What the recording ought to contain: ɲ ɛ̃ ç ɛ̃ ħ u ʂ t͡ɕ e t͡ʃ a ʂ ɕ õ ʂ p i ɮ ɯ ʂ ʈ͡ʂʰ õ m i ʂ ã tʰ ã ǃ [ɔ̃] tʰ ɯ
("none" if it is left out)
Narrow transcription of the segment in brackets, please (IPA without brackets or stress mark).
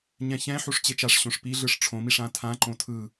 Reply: õ